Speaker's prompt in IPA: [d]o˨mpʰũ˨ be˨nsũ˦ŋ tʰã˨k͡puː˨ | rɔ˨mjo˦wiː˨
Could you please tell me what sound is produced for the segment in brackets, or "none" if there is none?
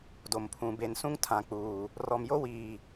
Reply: d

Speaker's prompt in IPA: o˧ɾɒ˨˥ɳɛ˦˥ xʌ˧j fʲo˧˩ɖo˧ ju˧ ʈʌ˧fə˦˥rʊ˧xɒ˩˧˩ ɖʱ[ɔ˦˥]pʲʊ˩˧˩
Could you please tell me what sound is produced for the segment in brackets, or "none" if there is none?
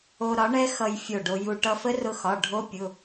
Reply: o˦˥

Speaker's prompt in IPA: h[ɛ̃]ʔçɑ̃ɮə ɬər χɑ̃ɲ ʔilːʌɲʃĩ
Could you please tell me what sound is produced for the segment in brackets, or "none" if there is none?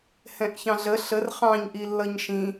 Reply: ɛ̃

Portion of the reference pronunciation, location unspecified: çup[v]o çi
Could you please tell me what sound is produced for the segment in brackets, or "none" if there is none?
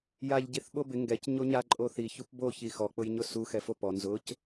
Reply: b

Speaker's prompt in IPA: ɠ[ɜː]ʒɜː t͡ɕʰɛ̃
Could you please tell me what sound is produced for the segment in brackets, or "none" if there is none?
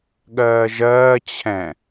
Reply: ɜː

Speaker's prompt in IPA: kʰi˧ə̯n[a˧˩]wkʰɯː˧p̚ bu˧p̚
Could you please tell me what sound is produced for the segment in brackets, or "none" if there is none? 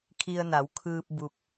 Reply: a˩˧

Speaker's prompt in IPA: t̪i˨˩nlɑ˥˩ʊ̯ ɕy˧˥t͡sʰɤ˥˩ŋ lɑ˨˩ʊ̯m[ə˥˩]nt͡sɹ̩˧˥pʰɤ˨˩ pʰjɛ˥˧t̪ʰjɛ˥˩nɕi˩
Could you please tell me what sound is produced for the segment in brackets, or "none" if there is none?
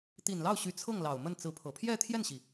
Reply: ə˥˩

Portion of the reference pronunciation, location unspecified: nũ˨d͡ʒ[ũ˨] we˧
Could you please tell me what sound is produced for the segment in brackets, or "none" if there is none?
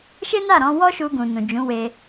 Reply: ũ˨˦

